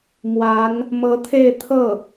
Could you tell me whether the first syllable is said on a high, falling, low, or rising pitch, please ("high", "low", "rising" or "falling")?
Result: rising